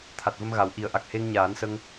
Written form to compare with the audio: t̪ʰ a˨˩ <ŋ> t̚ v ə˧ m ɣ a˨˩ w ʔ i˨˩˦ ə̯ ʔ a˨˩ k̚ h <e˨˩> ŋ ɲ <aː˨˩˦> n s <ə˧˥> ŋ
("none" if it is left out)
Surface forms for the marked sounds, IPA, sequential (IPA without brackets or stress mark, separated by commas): none, e˧, aː˨˩˦, ə˧